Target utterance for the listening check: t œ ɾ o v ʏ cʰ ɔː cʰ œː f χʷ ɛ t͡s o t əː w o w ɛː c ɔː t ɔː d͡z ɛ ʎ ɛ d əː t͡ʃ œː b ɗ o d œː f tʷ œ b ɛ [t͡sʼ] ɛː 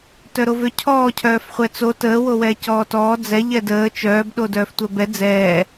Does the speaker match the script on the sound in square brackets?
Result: no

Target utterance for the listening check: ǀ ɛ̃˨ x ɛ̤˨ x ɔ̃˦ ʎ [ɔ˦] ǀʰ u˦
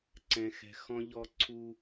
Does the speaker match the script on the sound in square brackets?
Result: yes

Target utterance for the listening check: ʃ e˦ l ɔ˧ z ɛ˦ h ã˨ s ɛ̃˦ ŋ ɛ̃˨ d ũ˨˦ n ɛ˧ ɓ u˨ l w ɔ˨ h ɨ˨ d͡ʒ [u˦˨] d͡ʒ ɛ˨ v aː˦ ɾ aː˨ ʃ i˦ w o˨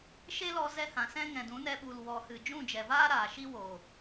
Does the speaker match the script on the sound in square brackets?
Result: no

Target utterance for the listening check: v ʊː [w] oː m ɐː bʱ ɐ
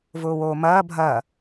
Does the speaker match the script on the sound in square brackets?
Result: yes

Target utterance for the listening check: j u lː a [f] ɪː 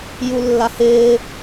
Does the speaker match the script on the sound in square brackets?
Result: no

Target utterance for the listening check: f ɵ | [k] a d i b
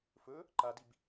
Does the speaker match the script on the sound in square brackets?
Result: no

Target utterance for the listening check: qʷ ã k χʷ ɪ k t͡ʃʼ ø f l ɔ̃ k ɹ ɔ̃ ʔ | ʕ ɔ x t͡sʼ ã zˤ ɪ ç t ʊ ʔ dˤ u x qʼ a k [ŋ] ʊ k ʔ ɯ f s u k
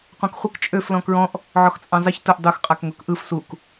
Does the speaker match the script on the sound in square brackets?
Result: yes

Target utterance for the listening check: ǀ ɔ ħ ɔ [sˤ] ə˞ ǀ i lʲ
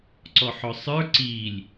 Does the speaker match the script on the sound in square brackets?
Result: yes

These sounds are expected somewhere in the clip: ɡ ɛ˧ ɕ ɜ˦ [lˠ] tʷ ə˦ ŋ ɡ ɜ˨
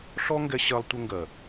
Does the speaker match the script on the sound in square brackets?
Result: yes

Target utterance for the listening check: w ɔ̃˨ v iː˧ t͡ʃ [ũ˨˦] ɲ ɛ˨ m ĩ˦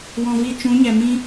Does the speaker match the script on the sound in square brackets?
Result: yes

